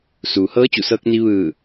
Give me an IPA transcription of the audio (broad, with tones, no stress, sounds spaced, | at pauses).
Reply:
s uː˩ h ɤː˧˥ t͡ɕ u˧˩ s ɤː˧ k̚ n i˧ ʋ ɯː˧˩